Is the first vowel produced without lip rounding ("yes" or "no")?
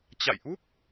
yes